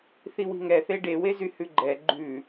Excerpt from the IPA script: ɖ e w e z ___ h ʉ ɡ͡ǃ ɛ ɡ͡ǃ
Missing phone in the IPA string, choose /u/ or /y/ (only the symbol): y